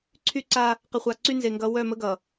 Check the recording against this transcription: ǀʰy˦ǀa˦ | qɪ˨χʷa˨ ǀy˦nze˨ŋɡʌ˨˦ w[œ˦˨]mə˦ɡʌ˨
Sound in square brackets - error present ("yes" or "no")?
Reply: no